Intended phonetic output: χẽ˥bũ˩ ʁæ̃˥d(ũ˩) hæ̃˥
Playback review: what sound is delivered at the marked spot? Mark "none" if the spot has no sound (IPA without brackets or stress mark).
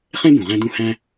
ũ˥